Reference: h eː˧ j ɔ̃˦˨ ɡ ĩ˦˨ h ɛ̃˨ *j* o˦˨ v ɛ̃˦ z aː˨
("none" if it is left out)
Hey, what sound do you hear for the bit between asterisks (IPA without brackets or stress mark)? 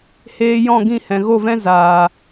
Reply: ɣ